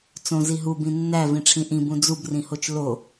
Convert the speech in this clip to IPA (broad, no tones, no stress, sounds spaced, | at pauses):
t͡s õ z i ɦ u b ĩ nː æ v ĩ ʈ͡ʂʰ ĩ ʔ ĩ b ũ d͡z u b r ĩ h o t͡ʃ l o